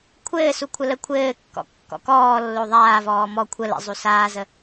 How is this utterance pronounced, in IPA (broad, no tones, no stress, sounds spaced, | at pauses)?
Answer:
kʷʰ ɘː s u kʷʰ ə l ə kʷʰ ɘː kː ɔ̰ kː ɔ̰ k ɔː lː o ðˤ aː v ɔː m ɔ kʷʰ ə l ə̰ zˤ u s aː z ə